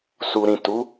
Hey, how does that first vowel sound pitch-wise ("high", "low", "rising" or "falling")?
low